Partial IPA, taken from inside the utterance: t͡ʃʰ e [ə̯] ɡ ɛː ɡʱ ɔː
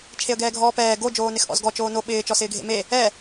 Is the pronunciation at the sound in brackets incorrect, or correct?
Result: correct